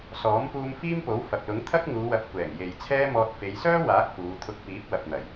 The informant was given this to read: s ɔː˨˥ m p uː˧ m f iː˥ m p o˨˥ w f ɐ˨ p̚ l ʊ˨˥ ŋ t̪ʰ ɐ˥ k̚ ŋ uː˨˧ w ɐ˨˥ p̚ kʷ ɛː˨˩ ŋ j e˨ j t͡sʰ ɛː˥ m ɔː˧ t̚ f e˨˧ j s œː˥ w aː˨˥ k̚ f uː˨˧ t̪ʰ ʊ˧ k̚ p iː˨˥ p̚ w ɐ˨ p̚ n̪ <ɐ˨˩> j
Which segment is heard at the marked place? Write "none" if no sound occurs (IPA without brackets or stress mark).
ɐ˨˩